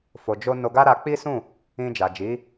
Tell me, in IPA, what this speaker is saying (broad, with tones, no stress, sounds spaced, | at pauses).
f o˨ d͡ʒ o˧ n o˧ ɡ a˦ ɾ a˧ k͡p i˦ s ũ˦˨ | ĩ˧ d͡ʒ a˨ d͡ʒ i˨˦